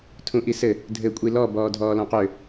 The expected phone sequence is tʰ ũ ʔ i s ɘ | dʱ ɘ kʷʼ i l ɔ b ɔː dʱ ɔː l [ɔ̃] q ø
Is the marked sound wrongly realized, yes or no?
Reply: no